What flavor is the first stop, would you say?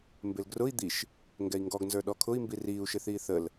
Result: plain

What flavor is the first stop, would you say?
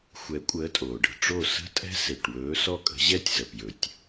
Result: ejective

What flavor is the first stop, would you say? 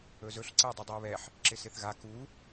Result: click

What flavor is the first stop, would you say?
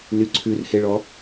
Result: click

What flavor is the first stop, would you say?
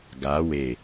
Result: plain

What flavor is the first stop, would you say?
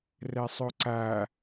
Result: click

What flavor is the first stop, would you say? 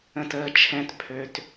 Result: plain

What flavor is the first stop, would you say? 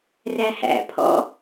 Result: aspirated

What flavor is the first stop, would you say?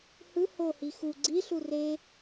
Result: click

